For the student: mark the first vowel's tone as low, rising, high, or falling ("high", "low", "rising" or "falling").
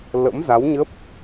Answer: rising